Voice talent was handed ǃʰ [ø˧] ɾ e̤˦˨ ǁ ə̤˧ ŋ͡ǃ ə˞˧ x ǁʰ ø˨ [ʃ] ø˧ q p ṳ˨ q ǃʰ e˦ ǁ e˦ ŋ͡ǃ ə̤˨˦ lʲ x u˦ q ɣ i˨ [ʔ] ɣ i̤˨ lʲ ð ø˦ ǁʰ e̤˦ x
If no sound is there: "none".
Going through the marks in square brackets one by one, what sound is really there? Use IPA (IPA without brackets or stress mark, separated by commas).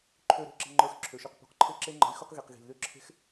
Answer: ø˧, ʃ, q